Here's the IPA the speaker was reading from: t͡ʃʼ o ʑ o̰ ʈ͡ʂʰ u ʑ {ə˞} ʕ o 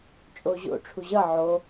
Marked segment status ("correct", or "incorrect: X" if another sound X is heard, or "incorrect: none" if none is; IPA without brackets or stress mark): incorrect: ʌ